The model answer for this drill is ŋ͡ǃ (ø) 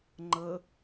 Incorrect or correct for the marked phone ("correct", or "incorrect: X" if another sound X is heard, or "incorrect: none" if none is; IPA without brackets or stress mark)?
incorrect: ə